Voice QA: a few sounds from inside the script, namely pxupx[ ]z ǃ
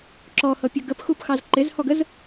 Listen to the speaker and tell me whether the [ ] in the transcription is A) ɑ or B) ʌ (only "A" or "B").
A